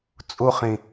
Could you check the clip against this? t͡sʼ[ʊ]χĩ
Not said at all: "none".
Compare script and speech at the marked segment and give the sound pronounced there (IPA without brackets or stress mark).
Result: u